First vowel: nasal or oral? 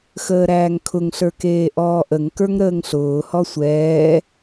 oral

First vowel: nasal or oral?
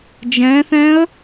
nasal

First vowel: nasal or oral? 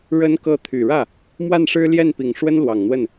oral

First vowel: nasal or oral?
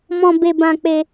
nasal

